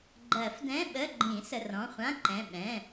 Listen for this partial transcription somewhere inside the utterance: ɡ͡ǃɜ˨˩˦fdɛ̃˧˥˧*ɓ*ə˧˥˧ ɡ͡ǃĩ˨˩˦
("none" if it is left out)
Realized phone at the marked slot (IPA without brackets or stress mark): ɓ